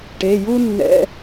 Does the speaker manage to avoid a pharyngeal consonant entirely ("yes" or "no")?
yes